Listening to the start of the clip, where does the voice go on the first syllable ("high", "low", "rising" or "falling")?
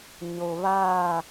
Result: low